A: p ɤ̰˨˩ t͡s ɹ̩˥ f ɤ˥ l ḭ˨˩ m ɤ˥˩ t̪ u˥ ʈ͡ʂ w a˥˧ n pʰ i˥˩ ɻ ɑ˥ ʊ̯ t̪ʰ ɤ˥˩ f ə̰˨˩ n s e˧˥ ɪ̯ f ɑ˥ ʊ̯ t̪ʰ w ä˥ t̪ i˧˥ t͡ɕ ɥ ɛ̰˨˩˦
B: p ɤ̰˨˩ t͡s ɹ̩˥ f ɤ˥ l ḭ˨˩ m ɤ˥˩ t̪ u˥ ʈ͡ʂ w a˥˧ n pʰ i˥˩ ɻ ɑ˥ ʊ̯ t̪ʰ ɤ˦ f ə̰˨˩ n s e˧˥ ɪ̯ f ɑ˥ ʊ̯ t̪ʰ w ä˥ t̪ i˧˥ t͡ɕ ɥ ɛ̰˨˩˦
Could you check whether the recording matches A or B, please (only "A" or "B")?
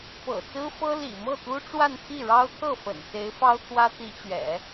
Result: A